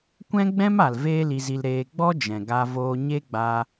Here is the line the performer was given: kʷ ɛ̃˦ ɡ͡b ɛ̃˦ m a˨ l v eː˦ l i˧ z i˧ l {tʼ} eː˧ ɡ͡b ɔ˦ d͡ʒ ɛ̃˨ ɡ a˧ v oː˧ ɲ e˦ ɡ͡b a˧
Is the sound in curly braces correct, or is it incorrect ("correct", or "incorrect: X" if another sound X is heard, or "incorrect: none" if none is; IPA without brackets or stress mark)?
incorrect: ɾ